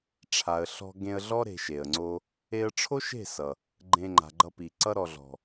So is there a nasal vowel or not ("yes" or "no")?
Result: yes